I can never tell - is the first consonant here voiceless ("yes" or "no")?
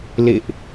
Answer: no